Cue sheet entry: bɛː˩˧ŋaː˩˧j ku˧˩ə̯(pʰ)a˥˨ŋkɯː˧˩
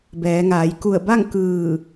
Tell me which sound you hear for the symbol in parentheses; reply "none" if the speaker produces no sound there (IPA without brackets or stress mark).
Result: b